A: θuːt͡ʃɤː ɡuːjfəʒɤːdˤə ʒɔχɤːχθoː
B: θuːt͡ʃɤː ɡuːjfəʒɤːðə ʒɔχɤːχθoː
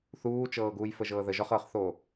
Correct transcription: B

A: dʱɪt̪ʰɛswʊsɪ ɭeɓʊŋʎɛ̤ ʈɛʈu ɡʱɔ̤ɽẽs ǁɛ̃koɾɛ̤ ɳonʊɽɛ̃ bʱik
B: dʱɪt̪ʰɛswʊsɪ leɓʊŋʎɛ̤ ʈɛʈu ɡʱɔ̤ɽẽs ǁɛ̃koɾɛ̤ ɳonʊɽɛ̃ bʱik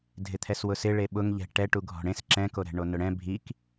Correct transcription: A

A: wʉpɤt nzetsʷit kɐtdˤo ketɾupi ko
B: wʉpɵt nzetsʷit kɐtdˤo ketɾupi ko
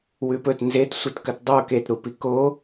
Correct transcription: B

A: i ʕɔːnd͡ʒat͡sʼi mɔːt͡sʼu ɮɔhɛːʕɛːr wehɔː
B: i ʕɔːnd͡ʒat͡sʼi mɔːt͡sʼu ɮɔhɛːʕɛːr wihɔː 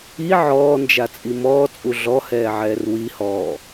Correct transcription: B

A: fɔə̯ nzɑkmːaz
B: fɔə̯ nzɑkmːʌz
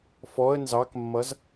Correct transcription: B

